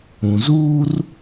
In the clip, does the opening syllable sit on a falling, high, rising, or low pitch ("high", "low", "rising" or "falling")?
low